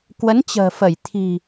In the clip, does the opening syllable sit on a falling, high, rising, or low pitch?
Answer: rising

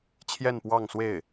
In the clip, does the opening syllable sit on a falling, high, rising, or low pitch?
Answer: falling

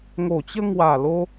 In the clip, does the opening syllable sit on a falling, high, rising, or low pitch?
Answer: low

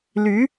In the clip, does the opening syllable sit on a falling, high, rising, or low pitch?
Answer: rising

